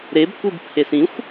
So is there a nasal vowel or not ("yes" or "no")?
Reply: yes